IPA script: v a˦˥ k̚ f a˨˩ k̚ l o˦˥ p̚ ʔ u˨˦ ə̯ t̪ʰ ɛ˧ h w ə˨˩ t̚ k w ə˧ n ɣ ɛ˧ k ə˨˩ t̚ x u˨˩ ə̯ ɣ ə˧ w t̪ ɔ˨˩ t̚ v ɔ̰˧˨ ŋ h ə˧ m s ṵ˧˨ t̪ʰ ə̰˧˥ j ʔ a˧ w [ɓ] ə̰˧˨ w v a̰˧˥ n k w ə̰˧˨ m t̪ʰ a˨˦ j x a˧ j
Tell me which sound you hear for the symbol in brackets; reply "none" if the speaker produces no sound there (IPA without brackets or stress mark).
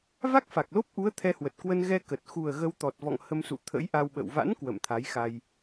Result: ɓ